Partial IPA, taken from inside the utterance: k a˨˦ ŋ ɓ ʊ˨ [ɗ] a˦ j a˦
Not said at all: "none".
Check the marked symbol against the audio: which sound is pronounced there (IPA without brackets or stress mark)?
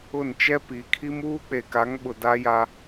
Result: d